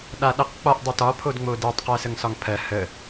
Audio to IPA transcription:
ɗ a ɗ ə q k͡p ɒ ʔ dˤ e t ɒ pʰ o d ŋ͡m o d e tˤ q ɜ s ə ŋ s ɒ ŋ pʰ ɜ h ə

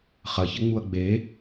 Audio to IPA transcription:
χ ɐ ç ɘ ŋ͡m u ɐ̯ ɡ͡b e

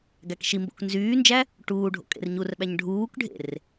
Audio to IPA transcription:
ɡ æ k ʃ i m b o̰ k n z yː n d͡ʒ æ | ʈ uː ɖʱ o̰ kʼ ḛ r ɲ u r ɓ æ ɲ ɖʱ uː k ɖʱ ḛ r

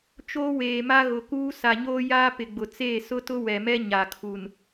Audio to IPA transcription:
t͡ʃ oː˦ w eː˨ m a˦ ɣ ʊ˨ k uː˦ s a˨ ɲ oː˦ j aː˦ p ɪ˨ ɡ͡b ʊ˨ t͡s eː˦˨ s ʊ˦ t ʊ˦ w ɛ˨ m ɛ˦ ɲ a˨ kʰ u˨ n

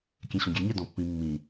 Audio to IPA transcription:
kʲ ɛ̃ ɕ ɔ̃ ɡʲ ɛ ɲ ɛ d ɔ̃ pː ĩ mː ĩ

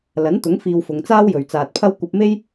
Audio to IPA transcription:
l ɐ˨˥ n t̪ ʊ˨˥ ŋ f iː˧ w f ʊ˨˧ ŋ t͡s aː˥ w j ɵ˨ ɥ t͡s aː˨ t̚ pʰ ɐ˥ w kʷ ɐ˧ p̚ m e˥ j

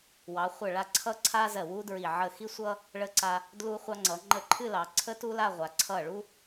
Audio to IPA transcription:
w ɑ˩˧ χʷ ə˧˩ ɭ a˧ ǀʰ ʌ˥˧ ǀʰ a˥ z ɜ˧˩ w u˥ d ɹ i˧˩ ʕ ə˧˩ x i˥ sʷ ʌ˥ | ɭ ə˧ ǀ a˧ | d l u˧ χʷ ɑ˧ ŋ͡ǀ ʌ˩˧ ŋ͡ǃ ə˧ ǃʰ ɨ˥˧ l ɑ˩˧ ǀʰ ə˥ t u˥ l a˥˧ ʁʷ a˩˧ ǀʰ ʌ˧˩ ɭ u˥

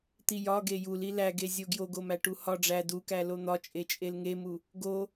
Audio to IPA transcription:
t̪ i j ɒ ɡ e j u l i l æ ɡ e zʲ o ɡ j o ɡ o m æ ʈ u h ɒ ɖ͡ʐ æ d u k æ l o n̪ ɒ t͡ʃʼ e t͡ʃʼ e l ŋ e m u | ɡ o

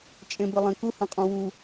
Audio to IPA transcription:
t͡ʃʼ ẽ b ɪ lˠ ẽ k u h ə̃ qʼ ũ w u

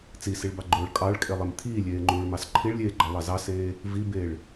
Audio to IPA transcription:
t͡s i s i ɭ b ɑ ɡ͡ǃ oː ɭ kʼ ɑ ɭ kʼ e lˠ e m t̪ʰ iː lʲ eː ŋ͡ǃ uː ɭ m ɑ s ǃʰ i ɭ lʲ eː ɡ͡ǃ ɑ lˠ ɑ z ɑ s eː | v i b eː ɭ

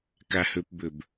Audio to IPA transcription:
k a h ɵ p b ɵ b

